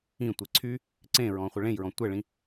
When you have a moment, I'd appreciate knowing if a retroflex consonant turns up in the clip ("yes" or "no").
yes